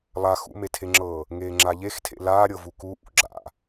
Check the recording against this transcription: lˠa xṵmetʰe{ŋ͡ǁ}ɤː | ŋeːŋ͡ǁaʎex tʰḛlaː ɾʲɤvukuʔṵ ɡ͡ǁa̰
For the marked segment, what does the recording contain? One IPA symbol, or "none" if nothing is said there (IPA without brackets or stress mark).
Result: ŋ͡ǁ